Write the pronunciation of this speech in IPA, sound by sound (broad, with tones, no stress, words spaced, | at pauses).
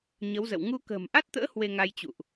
ɲə˨˦wzə̰˧˨w ŋu˧kə̤ː˨˩mʔa˦˥t̚t̪ə̰ː˧˥ hwe˧ŋa˧jt͡ɕṵ˧˨ʔ